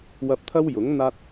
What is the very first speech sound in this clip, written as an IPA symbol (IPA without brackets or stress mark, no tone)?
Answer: w